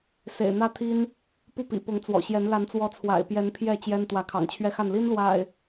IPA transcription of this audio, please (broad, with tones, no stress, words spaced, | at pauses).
sḛ˨˩ɪ̯n̪ä˦t̪ʰi˦n | pu˥˨pḭ˨˩ pʊ˨˦ŋt͡swɔ̰˨˩ɕjɛ˨˦n la˨˦nt͡swɔ˨˦ t͡sʰwa̰˨˩ɪ̯pjɛ˨˦n pʰjɛ˥˨t͡ɕjɛ˦n t̪wä˨˦kʰɑ̰˨˩ŋt͡ɕʰɥɛ˦xa˥˨n li˦nlwa̰˨˩ɪ̯